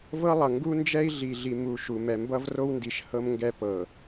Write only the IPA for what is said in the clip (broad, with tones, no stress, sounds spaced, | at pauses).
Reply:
v ɤ˦ lˠ ʌ˨ ŋ ɡ u˦ n d͡ʒ ɛ˦ i̯ ɮ i˨ ɮ i˨ m u˨ ʃ u˨ m ɛ˨ m b ʌ˦ v r o˦ w n d i˨ ʃ h ɤ˦ m ŋ ɡ ɛ˦ p ɤ˨